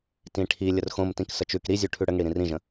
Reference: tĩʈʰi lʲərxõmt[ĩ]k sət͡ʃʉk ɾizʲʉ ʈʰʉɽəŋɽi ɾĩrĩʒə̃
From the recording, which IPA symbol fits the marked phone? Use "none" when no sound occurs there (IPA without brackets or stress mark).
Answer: ĩ